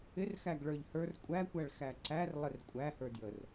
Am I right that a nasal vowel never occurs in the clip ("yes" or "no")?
yes